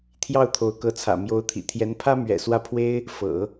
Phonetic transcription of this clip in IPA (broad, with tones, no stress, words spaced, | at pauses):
t̪ʰjɑ˥˩ʊ̯t̪ʰo˧˥ʊ̯kɤ˧˥t͡sʰä̰˨˩ mjo˧˥ʊ̯t̪ʰḭ˨˩t̪ʰjɛ˧˥n pʰä˥mɥɛ̰˨˩swä˥˩ pʰwe˥ɪ̯ | fɤ̰˨˩˦